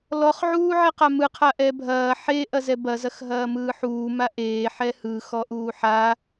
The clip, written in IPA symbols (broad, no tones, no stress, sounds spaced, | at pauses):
l ɔ χ ʕ uː ʕ e q a m ɯ qʰ a ʔ ɛ bʱ ɐː ħ e ʔ ɐ z ɛ b ɐ z ɐ x ɦ ɐː m ɯː ħ uː m a ʔ eː ħ ɛ h ɯ x ɔ ʔ uː ħ a